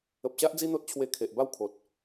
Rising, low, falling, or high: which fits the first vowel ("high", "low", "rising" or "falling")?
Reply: low